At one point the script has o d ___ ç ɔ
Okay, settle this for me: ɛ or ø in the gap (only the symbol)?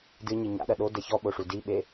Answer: ɛ